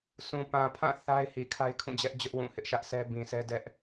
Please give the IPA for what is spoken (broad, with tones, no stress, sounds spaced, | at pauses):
s ũ˨ p ã˨ pʰ ã˦˨ θ a˦ ɪ̯ h i˨ kʰ a˦ ɪ̯ kʰ ũ˦˨ d͡ʑ ɛ˦ ʔ d͡ʑ ʊ˦ ʔ w ũ˦˨ h ɪ˦ ʔ ʃ ä˦ ʔ s ɛ˦ b ĩ˨ s ɛ˦ d ɛ˦ ʔ